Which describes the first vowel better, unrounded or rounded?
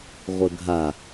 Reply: unrounded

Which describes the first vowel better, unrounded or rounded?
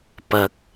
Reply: unrounded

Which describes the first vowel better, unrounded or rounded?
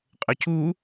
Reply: unrounded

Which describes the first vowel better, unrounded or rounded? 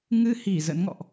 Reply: unrounded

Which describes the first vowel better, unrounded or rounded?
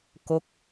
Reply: rounded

